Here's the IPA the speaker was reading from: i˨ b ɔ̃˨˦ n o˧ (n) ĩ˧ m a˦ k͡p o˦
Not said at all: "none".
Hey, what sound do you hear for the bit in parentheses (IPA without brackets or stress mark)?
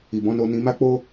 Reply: n